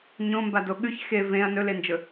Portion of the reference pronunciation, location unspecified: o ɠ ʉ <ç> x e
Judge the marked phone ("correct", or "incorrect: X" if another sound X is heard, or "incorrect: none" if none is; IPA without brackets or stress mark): correct